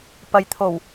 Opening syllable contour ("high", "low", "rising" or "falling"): low